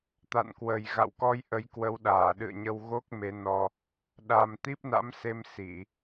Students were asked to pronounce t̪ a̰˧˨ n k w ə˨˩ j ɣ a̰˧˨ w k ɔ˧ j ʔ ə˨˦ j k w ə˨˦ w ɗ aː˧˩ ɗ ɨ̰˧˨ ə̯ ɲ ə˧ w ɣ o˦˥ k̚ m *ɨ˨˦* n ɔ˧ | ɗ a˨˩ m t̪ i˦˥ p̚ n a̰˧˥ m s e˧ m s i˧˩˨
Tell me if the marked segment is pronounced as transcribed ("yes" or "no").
no